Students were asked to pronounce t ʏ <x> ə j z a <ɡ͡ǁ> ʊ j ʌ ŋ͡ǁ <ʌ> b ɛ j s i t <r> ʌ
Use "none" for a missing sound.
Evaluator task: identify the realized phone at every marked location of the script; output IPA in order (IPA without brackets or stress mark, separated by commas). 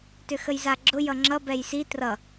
x, ɡ͡ǁ, ʌ, r